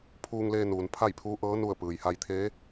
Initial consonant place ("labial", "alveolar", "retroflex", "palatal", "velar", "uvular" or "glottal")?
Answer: labial